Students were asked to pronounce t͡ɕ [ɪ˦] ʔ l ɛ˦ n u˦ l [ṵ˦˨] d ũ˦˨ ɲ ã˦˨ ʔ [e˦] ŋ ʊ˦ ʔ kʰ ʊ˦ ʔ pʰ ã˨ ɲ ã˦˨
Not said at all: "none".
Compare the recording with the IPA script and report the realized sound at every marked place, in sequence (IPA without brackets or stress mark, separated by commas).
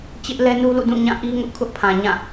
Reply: ɪ˦, ṵ˦˨, i˦